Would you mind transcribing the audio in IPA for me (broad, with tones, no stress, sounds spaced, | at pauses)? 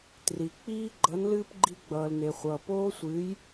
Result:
t r i˩ k͡p iː˥ ɡ͡ǃ ʌ˧˥ n l ɨː˥ p ɡ͡ǃ i˥ ɡ͡b ʌː˧ l n e˧ χʷ ʌː˧ p oː˥ sʷ ɨː˧˥ j